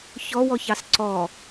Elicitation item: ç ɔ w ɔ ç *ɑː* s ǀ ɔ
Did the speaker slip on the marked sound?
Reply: yes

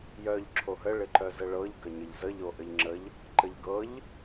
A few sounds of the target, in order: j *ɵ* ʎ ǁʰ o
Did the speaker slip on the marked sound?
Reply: yes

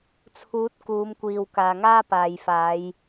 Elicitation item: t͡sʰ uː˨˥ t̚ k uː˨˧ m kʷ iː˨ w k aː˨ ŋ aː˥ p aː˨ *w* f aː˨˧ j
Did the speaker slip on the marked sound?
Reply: yes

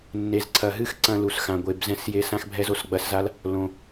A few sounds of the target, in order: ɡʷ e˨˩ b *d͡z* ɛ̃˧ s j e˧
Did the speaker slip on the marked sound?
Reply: yes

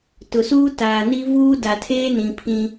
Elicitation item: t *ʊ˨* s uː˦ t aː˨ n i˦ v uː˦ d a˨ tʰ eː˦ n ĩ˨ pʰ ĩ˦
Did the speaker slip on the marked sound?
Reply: no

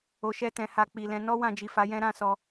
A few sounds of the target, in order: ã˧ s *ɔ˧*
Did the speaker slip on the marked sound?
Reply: no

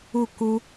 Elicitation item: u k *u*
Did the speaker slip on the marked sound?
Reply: no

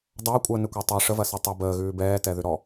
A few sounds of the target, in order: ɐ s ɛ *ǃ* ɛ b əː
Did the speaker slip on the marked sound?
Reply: yes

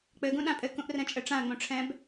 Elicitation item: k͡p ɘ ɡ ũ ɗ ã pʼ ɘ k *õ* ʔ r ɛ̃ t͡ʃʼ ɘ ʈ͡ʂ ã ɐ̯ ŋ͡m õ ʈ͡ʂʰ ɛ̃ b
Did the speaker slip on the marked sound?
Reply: yes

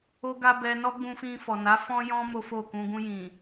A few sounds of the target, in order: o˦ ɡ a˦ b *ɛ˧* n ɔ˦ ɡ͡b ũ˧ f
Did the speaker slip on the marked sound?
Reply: no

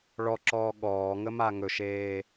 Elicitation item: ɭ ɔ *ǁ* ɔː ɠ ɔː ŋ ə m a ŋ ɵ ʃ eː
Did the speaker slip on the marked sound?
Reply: no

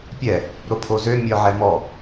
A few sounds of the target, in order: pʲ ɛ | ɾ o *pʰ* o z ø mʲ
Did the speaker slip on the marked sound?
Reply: no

